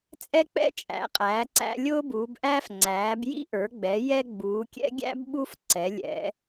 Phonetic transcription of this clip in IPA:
t͡sʼ ɛ˦ k͡p ɛ̰˦ t͡ʃʼ æ̰˩˧ qʼ æː˩˧ ǀ æ̰˦ lʲ ʊː˦ b uː˩˧ b ʔ æː˦ f ŋ͡ǀ æː˩˧ b j ḭ˦ ʔ ə˞˩˧ ɡ͡b ɛ˩˧ j ɛ˦ ɡ͡b uː˩˧ kʲ ɛ̰˦ ɡʲ æ̰˦ b ɓ u˦ f ǀ ɛ˩˧ lʲ ɛ̰˩˧

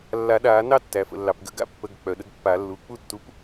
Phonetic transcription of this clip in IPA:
lː a˨˩˦ ɗ aː˨˩˦ n ɑ˥˩ tː æ˩ f ə̰˩ lː ɑ˩ p ɡ ə̰˨˩˦ ɡ a̰˦ pː ə˩˧˩ ɡ k͡p œ˩ ɗ ə˦ ɡ pː a˨˩˦ lː u˩˧˩ k͡p u˥˩ tː u˨˥ p

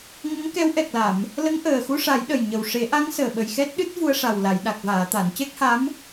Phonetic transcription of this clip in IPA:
ŋ ə˧˥ ŋ k ɛ˧˥ w ʔ ɛ˨˩ k̚ l a˨˩˨ m | l ə˧˥ ŋ ʔ əː˨˩ x u˧ ʂ a˨˩˦ j ɗ ə˨˩ j ɲ ə˨˩ w ʂ e˨˩˦ ʔ a˧˥ ŋ s əː˨˩ ɓ ə˨˩ j x ɛ˦˥ t̚ ɗ ɨ˦˥ t̚ v u˧ ə̯ ʂ a˨˩ w l a˨˩˨ j ɗ a˨˩ k̚ v aː˨˩˨ t̪ a˨˩˨ n c e˦˥ k̚ h a˧˥ m

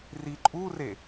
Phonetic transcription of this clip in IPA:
r i ǃʼ u r e

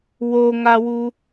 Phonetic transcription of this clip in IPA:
w o ŋ a w u

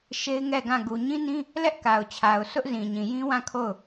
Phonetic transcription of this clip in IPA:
ʃ e˦ ɪ̯ ŋ ɛ˦˨ ɡ ã˦˨ ɡ u˨ ɲ ĩ˦ n ĩ˦ | l ɛ˦ ʔ k a˨ ʊ̯ t͡ɕʰ a˨ ʊ̯ sʰ ʊ˦ ʔ z ĩ˨ ɲ ĩ˨ j ĩ˦ w ã˦˨ kʰ o˦˨ ʊ̯

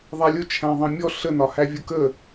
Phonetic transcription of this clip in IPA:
ðˤ æ lʲ ʊ t͡ʃʰ æ̃ ðˤ ɑ̃ mʲ ɔ ɬ ə n ɒ h æ vʲ ʊ k ə

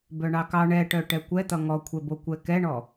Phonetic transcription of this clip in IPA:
b œ ɳ ɑ k ɑ ɳ ɛ ʈ œ ʈ ɛ kʷ ɛ t̪ ʌ ŋ ɔ kʷʰ ɛ b o kʷ ɛ k ɛ ɳ ɔ

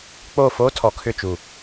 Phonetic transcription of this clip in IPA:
k͡p o˦˨ f o˦ tʰ ɔ˨ kʰ ʏ˦˨ t͡ʃ u˨

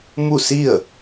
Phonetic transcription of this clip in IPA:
m u˥˨ s i˥˨ ə̯

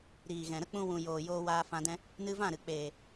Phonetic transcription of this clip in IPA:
ɾ iː˨ ɣ ɛ̃˨ ɾ ə˦ k͡p ũ˧ w ũ˨ j oː˨ j oː˧ w aː˧ f ã˧ d ɛ̃˧ | n ɨ˧ v ã˦˨ ɾ ɨ˨ k͡p eː˨

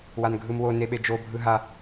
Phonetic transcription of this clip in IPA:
w a n ɡʱ ɯ m w o n e ɓ e d͡ʒ o bʱ ɯ ɦ a

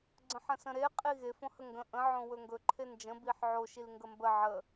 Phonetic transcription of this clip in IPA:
ɡ͡ǀ ə̃ ħ ə̃ s ə̃ ɾ e qʼ i ɣ e f õ h ə ŋ ɡ ə̃ ʔ ə̃ ʕ õ w ɵ ŋ ɡ ɵ ǃʰ e n d͡ʒ ə̃ b i ħ ʕ o ʃ i l ŋ ɡ ə m b ə ʕ ə

